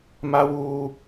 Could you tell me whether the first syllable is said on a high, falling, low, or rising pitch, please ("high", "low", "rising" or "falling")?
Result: high